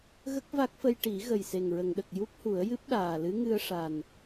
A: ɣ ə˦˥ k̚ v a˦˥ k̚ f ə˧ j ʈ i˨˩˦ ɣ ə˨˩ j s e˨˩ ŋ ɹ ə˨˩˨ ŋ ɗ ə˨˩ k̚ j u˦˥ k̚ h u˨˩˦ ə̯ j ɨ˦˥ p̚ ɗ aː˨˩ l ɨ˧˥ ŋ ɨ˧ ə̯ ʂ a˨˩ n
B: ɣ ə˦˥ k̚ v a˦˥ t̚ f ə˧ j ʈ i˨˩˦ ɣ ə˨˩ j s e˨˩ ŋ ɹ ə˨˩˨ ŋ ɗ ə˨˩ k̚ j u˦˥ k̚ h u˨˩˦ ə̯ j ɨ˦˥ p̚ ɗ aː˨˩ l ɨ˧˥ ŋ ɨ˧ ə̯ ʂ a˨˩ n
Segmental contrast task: A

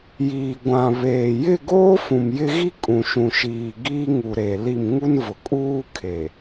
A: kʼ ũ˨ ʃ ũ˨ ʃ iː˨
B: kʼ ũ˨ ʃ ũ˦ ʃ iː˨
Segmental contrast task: A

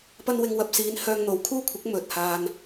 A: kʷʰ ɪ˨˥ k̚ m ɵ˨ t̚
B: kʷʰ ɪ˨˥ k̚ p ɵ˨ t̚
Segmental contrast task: A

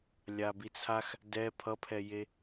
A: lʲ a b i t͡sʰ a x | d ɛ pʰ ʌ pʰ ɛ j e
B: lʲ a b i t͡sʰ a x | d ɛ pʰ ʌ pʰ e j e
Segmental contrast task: A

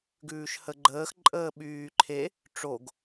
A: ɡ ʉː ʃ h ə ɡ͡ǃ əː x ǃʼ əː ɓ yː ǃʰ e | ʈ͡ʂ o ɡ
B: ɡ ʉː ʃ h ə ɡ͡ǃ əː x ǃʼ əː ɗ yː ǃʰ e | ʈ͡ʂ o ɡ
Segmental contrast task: A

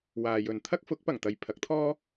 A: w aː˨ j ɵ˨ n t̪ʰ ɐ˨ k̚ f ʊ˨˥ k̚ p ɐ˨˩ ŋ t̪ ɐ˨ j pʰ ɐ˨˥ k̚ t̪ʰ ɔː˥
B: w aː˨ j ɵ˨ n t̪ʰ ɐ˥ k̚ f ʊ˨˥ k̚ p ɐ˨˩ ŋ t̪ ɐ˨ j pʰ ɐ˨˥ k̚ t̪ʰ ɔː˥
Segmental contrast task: B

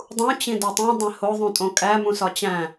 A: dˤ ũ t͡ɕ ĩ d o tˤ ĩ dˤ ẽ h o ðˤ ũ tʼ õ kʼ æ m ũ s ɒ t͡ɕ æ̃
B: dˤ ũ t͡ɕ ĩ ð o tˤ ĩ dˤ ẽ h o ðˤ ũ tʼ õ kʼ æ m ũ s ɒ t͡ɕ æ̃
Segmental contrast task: A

